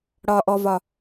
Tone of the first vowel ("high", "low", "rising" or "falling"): low